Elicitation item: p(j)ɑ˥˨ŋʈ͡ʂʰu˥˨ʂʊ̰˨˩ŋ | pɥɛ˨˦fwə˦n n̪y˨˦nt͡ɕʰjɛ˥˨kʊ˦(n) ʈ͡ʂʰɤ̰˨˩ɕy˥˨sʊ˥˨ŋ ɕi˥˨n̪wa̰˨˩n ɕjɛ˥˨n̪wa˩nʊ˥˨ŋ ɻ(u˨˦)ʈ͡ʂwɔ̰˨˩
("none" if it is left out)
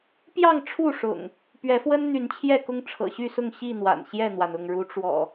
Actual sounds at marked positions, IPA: j, ŋ, u˨˦

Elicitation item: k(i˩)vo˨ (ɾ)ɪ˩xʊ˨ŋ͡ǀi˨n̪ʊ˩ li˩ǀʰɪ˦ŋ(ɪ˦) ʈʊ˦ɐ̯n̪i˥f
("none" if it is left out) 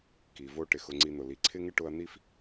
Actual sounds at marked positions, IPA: i˩, ʈ, ɪ˦

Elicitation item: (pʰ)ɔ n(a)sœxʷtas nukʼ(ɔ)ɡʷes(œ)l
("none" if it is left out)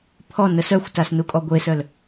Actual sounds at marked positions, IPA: pʰ, ə, ɔ, œ

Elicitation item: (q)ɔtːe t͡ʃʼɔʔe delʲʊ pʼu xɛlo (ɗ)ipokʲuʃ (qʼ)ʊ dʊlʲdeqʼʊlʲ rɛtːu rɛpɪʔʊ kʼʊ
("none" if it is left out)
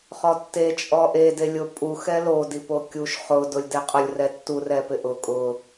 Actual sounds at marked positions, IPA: χ, d, χ

